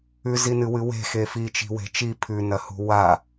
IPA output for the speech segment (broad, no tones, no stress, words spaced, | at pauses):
ʉzinɨwɨ we̤xe fit͡ʃi̤we̤ t͡ʃi pʰʉnɐhṳ wa